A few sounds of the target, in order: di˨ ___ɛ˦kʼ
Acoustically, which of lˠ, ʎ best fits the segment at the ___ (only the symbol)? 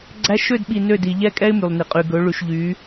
ʎ